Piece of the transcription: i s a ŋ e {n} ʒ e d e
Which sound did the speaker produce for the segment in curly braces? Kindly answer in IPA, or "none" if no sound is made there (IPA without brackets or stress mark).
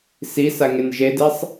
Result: n